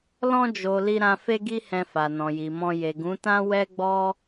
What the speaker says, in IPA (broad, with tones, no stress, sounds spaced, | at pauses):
l ɔ̃˧ d͡ʒ o˨ l i˧ ɾ ã˧ f e˦ ɡ i˦ h ɛ̃˧ f a˨ n ɔ̃˨ j i˨ m ɔ̃˧ j e˨ ɡ ũ˨˦ t ã˦ w ɛ˦ ɡ͡b ɔ˦